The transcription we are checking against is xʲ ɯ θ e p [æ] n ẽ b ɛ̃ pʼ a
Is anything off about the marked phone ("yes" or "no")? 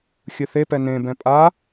yes